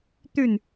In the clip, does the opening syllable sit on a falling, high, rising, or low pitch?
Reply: falling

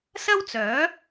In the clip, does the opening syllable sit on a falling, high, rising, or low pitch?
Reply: high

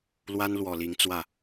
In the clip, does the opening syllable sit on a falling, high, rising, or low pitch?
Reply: high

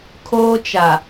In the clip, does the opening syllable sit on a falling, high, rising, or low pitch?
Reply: high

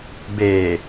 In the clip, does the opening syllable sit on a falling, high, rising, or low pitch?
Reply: low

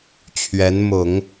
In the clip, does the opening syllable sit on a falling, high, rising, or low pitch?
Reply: rising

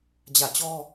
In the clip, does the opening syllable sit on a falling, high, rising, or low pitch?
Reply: falling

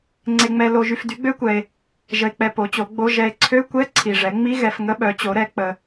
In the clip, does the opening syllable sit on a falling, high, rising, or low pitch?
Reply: low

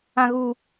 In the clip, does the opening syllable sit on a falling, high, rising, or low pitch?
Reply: high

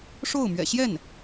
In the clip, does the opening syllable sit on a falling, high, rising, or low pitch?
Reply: falling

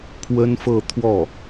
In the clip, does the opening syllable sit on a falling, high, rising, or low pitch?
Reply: high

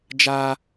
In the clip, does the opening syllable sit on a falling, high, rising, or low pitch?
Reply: high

